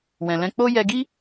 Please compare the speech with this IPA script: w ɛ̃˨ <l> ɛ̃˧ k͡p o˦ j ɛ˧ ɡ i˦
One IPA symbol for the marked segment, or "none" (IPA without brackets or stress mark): l